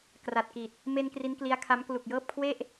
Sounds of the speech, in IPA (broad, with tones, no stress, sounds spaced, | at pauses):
k r a˨˩ t̚ k i˨˩ t̚ | m e˧ n k r i˦˥ n k l i˦˥ a̯ kʰ a˦˥ m k l u˨˩ k̚ j ɤː˥˩ p̚ kʰ w e˥˩ ʔ